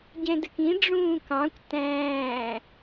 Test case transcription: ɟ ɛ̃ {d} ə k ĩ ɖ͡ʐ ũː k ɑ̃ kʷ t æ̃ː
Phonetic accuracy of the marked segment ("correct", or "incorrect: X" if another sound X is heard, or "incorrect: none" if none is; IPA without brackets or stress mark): correct